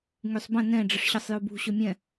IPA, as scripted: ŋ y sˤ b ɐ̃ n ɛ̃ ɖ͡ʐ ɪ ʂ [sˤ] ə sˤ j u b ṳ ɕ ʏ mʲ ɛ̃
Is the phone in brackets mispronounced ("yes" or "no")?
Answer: yes